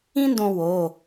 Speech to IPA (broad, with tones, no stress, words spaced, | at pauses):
ĩ˥ndõ˧ wo˩˧˩